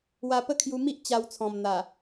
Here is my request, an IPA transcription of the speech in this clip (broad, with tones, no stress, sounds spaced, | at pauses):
w a˧ p ə˦ kʰ j u˧ m i˦ ʔ t͡ɕ a˧ w t͡sʰ ɔ̃˨˩ m n̪ a˨˩